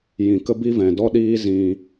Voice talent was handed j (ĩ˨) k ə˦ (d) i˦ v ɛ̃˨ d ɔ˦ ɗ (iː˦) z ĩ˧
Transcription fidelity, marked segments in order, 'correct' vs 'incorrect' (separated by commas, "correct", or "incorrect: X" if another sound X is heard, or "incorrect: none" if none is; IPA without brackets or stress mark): correct, incorrect: b, correct